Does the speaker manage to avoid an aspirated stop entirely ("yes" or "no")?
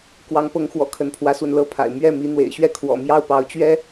no